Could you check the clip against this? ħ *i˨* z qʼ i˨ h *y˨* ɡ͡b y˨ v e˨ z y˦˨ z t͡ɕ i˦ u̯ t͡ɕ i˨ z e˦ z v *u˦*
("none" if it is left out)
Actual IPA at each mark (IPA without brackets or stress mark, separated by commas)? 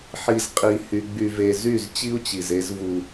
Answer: i˨, y˨, u˦